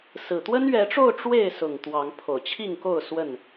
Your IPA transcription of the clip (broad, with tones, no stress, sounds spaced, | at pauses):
s ɹ̩˨˩ t̪ w ə˦ n ɥ ɛ˨˦ ʈ͡ʂ o˥˨ ʊ̯ ʈ͡ʂ w e˥˨ ɪ̯ s ʊ˨˩ ŋ t̪ w ɑ˨˦ ŋ pʰ o˨˩ ʊ̯ t͡ɕʰ i˥˨ ŋ k o˥˨ ʊ̯ s w ə˥˨ n